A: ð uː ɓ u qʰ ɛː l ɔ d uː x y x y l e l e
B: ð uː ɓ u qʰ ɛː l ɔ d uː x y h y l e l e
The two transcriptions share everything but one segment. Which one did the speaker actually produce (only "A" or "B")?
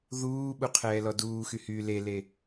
B